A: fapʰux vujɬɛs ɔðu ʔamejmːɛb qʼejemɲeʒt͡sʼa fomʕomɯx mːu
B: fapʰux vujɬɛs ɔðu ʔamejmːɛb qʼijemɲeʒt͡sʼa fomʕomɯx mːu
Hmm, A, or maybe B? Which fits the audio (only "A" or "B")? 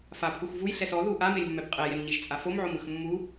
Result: A